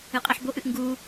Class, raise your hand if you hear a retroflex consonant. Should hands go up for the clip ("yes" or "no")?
no